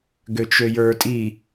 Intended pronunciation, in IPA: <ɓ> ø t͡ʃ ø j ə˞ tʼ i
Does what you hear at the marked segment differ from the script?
yes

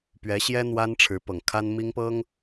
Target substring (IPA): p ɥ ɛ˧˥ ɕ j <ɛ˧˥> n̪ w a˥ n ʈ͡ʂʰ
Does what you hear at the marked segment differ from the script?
yes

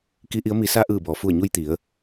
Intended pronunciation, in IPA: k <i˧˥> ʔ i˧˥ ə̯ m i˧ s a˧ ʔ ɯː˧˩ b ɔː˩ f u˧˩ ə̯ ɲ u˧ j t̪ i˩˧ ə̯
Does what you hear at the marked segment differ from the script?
no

